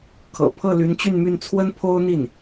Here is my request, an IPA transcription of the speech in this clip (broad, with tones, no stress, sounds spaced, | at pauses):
kʰ ɤ̰˨˩ pʰ ɤ˥˩ l y˧˥ n t͡ɕ y˥˧ n m y˥˩ n t͡sʰ w ə˥ n pʰ o˥ ʊ̯ n̪ i˥˩ n